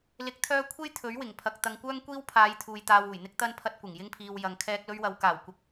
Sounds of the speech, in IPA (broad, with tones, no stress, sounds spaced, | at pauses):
l ɪ˨˥ k̚ t̪ʰ œː˧ kʷʰ e˥ j t̪ʰ ɵ˨˥ ɥ w ɪ˨˩ ŋ pʰ ɐ˨ k̚ t̪ ɐ˧ ŋ kʷ œː˥ ŋ kʷ iː˥ w pʰ aː˨˧ j t̪ʰ uː˨ j t̪ aː˨ w uː˨˩ j n̪ ɪ˧ k̚ t̪ ɐ˧ n pʰ ɐ˧ t̚ kʷ ɪ˨˩ ŋ j ɪ˧ ŋ pʰ iː˨ w j ɐ˨ ŋ kʰ ɛː˧ k̚ l ɵ˧ ɥ w ɐ˨ w k aː˨˩ w kʷ ɐ˨ k̚